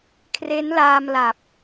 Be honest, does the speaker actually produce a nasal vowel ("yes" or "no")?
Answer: no